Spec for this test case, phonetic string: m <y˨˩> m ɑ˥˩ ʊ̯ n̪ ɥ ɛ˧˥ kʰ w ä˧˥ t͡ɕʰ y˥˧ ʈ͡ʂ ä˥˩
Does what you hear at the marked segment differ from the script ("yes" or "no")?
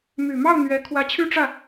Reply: no